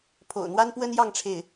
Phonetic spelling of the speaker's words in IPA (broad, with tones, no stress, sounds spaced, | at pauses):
pʰ o̰˨˩ ʊ̯ n̪ w a˥ n p w ə˥ n j ɑ˥˧ ŋ ʈ͡ʂʰ e˥˩ ɪ̯